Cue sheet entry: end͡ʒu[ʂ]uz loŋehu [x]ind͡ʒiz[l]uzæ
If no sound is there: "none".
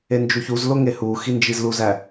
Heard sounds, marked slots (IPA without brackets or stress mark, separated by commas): ç, x, l